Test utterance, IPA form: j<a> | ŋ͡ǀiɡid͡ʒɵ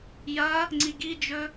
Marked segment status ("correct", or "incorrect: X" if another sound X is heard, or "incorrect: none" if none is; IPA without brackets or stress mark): incorrect: ɐ